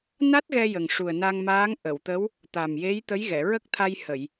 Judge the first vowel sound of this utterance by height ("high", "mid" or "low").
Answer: low